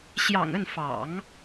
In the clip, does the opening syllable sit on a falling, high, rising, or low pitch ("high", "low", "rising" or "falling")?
low